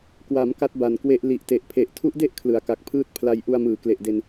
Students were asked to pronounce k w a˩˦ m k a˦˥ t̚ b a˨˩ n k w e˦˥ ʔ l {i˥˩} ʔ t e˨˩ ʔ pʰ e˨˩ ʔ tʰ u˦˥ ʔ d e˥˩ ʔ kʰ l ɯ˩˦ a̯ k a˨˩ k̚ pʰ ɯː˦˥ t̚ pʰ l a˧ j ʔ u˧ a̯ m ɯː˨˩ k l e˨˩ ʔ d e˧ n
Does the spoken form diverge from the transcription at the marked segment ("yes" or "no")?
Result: yes